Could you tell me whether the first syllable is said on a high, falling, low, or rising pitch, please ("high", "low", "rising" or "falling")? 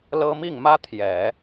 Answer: high